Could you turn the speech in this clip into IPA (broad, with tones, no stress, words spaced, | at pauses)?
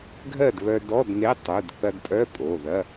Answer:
ɡʱɜ˥˨dβœ˧dɔ˧˥˧dne˧˥˧ tˤu˩˧˩d θɐ˧dpʼœ˧˥˧ pʼo˩˧˩ðɐ˧˥˧